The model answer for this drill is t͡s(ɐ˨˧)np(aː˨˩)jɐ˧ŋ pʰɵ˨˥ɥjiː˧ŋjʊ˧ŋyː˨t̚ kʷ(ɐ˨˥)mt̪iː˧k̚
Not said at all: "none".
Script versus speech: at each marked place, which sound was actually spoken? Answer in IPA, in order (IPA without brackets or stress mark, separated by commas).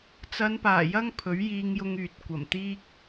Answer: ɐ˨˧, aː˨˩, ɐ˨˩